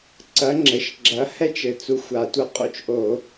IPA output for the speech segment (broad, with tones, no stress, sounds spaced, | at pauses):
ǀ ɐ˨˥ ŋ͡ǁ ɘ˩˧ ʃ ɡ͡ǁ ɐ˨˥ h ɛ˥ t͡ʃ ɘ˨˩ t͡s u˨˥ xʷ a˨˩ tʷ ɐ˥ qʼ o̰˥ t͡ʃ ʔ o˧˩˧